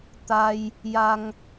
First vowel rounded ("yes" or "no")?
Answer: no